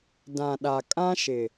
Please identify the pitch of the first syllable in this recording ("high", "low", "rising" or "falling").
low